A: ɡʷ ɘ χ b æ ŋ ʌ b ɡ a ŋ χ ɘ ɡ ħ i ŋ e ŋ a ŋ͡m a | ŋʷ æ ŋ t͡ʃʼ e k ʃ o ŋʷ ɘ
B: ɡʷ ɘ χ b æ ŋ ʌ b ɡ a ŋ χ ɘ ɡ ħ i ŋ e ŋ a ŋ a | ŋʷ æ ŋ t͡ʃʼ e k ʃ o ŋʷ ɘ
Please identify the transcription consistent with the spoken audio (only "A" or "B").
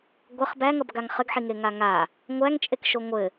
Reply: B